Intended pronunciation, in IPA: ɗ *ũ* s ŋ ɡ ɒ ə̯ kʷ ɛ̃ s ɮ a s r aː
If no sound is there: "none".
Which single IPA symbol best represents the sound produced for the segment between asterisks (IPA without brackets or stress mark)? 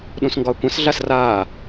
ũ